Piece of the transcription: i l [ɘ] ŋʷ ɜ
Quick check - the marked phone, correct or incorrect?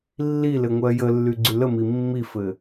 correct